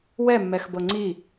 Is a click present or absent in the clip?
present